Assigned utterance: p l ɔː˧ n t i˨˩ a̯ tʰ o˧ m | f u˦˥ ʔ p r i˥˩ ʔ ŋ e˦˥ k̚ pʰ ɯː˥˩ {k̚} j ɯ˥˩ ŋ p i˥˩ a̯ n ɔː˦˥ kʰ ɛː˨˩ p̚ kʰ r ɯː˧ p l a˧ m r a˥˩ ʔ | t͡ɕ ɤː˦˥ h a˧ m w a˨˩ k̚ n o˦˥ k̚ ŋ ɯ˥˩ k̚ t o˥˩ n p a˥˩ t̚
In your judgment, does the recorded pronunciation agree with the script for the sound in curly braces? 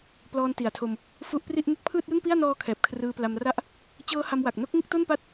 no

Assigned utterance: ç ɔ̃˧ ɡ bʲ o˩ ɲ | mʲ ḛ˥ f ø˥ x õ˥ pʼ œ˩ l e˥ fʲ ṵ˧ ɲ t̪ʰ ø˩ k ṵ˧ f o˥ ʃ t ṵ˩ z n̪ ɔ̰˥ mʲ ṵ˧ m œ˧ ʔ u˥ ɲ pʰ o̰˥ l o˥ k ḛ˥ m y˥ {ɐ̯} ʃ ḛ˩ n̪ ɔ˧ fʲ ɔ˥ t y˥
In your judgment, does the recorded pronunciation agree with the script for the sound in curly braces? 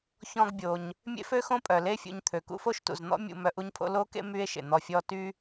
no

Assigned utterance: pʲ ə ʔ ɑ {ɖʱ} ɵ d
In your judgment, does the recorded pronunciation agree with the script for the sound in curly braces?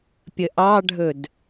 yes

